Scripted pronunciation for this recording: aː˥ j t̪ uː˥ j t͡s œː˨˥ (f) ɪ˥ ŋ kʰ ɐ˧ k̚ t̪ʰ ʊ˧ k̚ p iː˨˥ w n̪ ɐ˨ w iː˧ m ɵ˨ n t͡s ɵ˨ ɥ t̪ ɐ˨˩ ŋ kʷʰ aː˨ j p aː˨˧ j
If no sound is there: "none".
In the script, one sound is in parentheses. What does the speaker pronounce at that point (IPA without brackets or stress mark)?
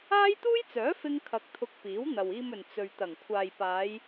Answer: f